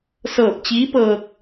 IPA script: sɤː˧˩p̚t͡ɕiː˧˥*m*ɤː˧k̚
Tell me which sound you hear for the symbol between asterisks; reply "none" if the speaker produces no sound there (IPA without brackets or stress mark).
p